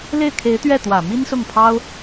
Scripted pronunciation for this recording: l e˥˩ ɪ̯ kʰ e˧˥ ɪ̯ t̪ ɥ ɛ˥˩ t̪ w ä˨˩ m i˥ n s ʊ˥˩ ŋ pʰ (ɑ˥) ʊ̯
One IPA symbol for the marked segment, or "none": ɑ˥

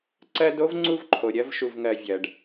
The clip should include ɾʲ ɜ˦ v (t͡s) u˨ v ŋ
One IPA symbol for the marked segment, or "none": ʃ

